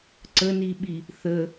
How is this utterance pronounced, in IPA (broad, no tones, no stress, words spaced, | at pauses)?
ǀəniɓi | θə